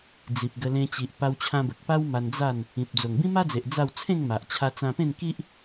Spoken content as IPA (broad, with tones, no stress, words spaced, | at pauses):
d͡zi˨p̚ɡə˧ lẽ˧t͡ɕi˨ʔ pa˧wt͡ɕʰã˧bə˨k̚ pa˦w ma˧nd͡za˥˧n | ĩ˨p̚ d͡zo˨˩ŋbĩ˦ma˦d͡ze˨ʔ d͡za˥˧w t͡sʰẽ˥˧ŋ ma˨ʔ t͡ɕʰa˧t͡sã˧pẽ˥˧n ki˦ʔ